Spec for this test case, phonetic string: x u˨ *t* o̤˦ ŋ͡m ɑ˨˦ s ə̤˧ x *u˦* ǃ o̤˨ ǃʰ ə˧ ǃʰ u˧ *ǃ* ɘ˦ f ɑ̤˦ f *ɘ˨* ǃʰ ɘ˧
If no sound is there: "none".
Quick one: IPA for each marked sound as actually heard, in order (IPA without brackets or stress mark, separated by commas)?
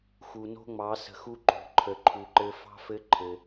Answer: n, u˦, ǃ, ɘ˦